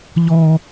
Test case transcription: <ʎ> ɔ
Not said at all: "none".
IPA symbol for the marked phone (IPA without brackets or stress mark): ʎ